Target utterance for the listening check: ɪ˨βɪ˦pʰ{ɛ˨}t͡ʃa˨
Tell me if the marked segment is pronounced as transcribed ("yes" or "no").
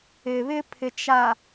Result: no